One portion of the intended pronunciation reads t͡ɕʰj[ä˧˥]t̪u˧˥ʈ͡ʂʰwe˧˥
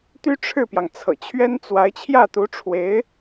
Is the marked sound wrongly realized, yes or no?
yes